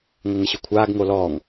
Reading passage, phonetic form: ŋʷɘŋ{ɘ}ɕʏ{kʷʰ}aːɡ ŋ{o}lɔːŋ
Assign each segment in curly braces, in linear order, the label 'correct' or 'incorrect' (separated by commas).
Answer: correct, correct, correct